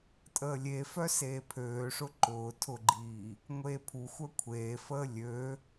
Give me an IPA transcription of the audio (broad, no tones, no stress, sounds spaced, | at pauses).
tʼ əː lʲ e f œ s eː pʰ øː ʂ ʊ ǃ ʊː tʰ ʊ ɡ͡ǃ iː | ŋʷ eː pʰ u xʷ œ kʷʰ eː f əː lʲ ø